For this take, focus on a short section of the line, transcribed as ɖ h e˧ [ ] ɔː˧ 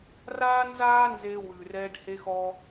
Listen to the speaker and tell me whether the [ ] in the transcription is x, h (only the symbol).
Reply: x